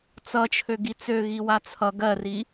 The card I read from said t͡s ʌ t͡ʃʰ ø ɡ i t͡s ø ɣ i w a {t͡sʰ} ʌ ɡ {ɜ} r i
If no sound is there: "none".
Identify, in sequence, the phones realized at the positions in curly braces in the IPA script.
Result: t͡sʰ, ɜ

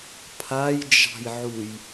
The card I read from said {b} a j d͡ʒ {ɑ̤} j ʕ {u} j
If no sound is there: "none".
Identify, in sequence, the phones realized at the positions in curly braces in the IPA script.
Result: pʰ, ɑ̤, u

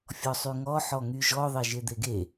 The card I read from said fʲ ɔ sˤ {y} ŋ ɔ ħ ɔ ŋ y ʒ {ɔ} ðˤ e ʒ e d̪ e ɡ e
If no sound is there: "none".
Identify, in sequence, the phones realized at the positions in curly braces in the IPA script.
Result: y, ɔ

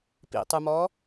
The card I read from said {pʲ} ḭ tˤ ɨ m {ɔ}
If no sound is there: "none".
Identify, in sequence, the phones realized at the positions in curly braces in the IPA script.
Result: p, ɔ

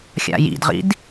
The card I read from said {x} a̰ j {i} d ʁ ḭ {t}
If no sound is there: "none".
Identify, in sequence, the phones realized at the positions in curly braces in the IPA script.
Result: xʲ, ḭ, d

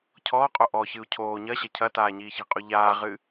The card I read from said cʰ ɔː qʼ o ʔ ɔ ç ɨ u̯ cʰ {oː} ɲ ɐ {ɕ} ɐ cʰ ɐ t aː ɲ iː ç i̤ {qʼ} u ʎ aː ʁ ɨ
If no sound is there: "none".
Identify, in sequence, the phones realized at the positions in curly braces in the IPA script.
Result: oː, ɕ, qʼ

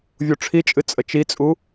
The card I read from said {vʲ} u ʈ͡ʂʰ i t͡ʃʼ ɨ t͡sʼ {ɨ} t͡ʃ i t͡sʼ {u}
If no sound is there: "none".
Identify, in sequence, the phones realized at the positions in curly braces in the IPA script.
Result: vʲ, ə, u

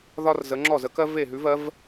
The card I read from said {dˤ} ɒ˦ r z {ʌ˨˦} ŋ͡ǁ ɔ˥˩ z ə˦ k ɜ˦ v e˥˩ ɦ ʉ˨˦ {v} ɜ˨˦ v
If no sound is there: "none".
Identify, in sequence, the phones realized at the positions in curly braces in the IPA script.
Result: ð, ə˨˦, v

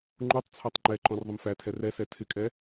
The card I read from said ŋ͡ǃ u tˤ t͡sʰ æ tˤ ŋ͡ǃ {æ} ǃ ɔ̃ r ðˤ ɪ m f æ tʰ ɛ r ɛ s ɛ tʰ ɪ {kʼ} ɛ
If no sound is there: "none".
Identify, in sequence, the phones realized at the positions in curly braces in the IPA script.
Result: ɛ, kʼ

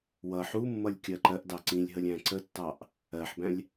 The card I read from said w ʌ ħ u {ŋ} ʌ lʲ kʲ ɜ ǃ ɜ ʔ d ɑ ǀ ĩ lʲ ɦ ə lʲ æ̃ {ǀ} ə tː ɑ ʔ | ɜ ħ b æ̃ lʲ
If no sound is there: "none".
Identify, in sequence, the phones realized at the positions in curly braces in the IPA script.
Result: mː, ǀ

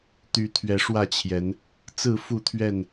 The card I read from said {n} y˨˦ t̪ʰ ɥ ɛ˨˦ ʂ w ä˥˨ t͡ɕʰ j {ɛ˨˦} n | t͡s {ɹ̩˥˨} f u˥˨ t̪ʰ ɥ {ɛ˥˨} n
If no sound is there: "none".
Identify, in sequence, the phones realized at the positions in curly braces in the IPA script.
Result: t̪, ɛ˨˦, ɹ̩˥˨, ɛ˥˨

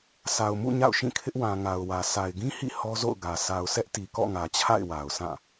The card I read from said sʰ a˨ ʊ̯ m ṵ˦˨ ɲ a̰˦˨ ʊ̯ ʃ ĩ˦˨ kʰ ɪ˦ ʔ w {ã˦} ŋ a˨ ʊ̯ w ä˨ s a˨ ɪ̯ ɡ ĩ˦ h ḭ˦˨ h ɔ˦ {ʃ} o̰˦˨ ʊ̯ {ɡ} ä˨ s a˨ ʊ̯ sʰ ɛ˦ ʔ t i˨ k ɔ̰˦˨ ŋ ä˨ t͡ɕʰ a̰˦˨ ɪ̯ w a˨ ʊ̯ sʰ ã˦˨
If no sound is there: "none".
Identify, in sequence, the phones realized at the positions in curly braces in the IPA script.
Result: ã˨, z, ɡ

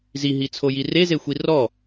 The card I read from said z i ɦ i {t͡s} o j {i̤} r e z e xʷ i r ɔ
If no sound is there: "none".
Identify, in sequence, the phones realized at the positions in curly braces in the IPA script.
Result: t͡sʰ, i

